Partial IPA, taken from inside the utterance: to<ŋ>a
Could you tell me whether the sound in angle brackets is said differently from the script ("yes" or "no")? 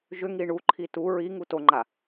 yes